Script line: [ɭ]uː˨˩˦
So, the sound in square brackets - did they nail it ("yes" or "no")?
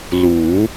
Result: no